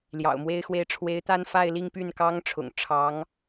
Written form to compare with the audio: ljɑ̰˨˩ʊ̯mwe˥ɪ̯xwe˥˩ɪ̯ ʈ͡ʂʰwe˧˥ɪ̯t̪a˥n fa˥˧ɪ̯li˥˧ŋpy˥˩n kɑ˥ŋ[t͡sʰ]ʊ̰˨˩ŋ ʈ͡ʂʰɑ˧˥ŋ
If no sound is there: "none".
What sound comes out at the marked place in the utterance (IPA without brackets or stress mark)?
ʈ͡ʂʰ